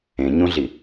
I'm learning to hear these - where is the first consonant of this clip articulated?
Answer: palate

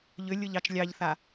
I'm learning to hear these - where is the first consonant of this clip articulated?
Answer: palate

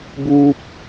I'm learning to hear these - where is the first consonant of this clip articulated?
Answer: lips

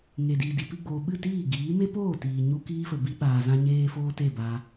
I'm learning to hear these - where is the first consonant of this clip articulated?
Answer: velum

